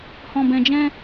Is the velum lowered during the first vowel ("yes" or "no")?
yes